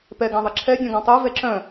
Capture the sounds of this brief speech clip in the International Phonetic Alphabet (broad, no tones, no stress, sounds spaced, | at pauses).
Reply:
p ɛ ɡ ã ðˤ ə ǁʰ ɛ dʲ œ̃ ɡ ã tˤ ø v ɛ ǁ œ̃